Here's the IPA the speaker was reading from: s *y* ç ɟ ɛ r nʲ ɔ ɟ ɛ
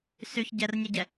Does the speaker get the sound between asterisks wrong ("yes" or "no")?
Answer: no